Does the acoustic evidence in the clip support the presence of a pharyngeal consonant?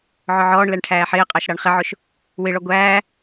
yes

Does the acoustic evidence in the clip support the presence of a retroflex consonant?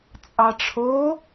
yes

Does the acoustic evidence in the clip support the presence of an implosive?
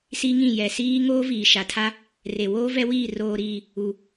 no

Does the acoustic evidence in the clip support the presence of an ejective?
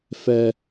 no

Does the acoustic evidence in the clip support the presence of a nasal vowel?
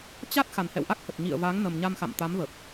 no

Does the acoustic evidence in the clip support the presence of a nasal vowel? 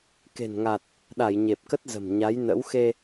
no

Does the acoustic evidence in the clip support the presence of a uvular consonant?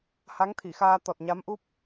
no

